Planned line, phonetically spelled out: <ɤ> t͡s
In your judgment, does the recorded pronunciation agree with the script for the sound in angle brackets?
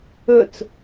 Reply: no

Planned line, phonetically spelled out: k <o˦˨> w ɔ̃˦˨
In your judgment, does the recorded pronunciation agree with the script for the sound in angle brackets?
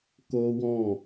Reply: no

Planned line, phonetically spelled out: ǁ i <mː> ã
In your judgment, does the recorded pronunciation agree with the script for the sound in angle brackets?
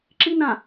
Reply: no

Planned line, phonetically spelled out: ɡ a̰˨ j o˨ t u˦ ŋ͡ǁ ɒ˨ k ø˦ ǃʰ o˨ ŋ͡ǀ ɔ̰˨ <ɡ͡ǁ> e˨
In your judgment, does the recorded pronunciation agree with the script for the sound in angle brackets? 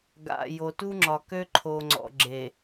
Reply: yes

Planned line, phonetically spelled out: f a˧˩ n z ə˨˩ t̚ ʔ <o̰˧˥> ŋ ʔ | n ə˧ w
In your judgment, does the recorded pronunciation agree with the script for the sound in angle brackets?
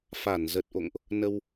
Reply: no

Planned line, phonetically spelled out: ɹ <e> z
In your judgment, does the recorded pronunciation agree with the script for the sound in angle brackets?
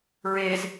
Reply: yes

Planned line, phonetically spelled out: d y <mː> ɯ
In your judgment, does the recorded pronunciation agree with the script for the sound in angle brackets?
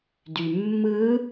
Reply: yes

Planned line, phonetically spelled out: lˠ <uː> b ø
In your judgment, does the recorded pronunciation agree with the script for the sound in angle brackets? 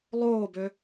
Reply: no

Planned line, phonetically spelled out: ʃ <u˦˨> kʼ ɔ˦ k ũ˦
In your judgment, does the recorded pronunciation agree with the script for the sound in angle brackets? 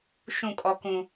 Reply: no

